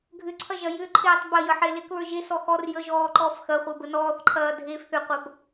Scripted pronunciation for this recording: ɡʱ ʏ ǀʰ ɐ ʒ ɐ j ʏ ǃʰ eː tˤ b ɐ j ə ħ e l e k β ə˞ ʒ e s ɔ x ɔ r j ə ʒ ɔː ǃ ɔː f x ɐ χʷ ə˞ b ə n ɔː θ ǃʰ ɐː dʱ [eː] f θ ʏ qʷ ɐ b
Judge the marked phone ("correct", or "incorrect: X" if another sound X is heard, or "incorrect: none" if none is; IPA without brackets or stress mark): correct